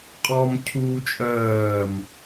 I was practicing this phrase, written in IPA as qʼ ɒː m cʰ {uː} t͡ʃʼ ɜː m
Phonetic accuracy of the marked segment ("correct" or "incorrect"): correct